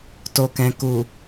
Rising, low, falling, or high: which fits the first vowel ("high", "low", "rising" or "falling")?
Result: low